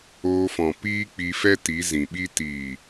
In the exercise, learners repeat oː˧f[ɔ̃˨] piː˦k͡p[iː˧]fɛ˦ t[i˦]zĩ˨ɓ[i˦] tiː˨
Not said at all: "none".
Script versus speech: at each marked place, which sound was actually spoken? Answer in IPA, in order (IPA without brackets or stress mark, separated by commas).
ɔ̃˨, i˧, i˨˦, i˦